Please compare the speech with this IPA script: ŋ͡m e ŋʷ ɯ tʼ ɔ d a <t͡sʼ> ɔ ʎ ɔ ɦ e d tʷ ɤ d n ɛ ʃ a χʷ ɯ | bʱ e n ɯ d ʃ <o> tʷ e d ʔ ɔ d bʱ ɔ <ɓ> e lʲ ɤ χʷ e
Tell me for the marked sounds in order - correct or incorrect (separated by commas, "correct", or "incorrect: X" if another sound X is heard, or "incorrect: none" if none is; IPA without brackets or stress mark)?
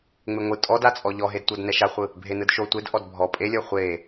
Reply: correct, correct, incorrect: pʼ